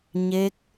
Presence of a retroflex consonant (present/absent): absent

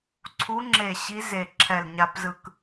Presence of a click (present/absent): present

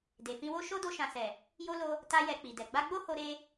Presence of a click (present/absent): absent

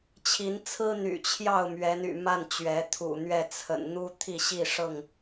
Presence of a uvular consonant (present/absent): absent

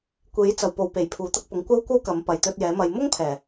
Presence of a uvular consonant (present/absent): absent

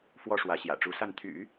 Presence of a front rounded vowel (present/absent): present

